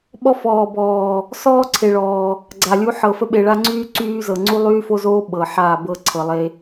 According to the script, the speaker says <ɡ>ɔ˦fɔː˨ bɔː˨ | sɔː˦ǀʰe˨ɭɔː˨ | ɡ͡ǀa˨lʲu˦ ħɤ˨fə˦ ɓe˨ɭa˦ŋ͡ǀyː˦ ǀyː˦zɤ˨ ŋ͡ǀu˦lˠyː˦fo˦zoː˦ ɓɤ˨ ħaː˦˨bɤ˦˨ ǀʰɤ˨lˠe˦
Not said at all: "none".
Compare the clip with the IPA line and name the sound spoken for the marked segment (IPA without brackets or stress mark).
ɓ